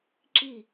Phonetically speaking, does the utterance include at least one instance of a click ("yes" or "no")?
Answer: yes